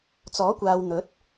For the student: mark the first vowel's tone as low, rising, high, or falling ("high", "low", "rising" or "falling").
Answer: rising